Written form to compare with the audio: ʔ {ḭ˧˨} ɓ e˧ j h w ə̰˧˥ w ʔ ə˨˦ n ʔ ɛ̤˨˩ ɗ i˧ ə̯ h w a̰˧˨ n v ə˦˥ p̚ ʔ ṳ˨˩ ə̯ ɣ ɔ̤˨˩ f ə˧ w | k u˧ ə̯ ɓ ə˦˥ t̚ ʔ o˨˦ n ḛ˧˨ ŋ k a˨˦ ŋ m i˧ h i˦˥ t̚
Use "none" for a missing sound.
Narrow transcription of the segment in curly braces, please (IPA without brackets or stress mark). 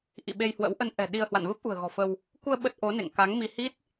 ḭ˧˨